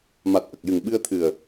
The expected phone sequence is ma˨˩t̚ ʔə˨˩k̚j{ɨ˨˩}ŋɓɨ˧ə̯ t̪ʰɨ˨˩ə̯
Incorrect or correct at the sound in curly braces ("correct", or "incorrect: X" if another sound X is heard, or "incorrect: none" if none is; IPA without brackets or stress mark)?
correct